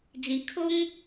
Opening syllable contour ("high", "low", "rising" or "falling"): low